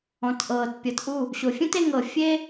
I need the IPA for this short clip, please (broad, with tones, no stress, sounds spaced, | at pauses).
ɔ̃˨ t ʔ ɤː˨ t pʲ ɤ˨ t ʔ u˦˨ | ɕ o˨ fʲ ũ˦ t e˧ ŋ ɤ˨ fʲ e˦